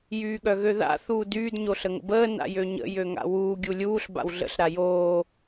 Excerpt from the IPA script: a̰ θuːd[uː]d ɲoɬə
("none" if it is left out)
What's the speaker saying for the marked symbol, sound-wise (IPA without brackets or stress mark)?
yː